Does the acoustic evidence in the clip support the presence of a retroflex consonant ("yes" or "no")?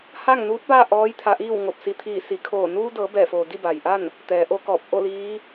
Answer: no